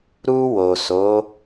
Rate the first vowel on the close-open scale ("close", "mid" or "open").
close